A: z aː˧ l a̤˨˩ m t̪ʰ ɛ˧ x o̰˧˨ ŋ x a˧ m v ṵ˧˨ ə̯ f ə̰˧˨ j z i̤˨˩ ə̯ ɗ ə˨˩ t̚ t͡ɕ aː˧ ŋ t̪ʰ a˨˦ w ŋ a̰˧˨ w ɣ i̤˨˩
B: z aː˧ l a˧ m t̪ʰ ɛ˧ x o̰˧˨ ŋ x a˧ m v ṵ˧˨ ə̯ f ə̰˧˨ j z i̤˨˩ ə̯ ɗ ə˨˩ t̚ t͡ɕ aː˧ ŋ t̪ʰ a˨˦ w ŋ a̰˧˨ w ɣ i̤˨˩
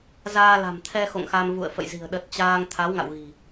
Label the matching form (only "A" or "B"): A